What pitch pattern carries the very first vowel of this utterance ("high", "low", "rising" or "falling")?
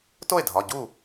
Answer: falling